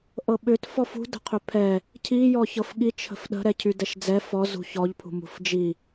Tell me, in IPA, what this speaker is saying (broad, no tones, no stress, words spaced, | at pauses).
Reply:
ʔɤɓʏt fɔfṳ də̤qʰʏpʰɛ | cʰi jɔçɤfɠi t͡ʃʰə̤fɗə̤ ɾɛcʰydɛʃd͡zɛ fɔ zṳçɔʎ pʰṳmṳfd͡ʒi